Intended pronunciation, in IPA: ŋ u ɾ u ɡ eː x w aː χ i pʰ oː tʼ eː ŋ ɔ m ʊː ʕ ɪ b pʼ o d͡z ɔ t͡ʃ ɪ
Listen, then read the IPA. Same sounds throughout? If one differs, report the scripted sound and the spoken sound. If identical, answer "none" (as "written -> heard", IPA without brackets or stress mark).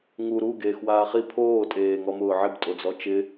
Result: pʼ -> tʼ